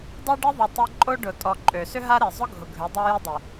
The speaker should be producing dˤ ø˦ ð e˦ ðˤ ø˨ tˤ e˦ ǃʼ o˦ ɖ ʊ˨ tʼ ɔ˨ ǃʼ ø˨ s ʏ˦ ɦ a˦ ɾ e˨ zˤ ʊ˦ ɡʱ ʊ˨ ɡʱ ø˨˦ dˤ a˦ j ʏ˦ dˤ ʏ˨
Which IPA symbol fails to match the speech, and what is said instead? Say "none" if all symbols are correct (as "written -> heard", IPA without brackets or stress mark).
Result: ð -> ɖ